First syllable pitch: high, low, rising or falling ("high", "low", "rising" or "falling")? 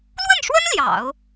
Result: falling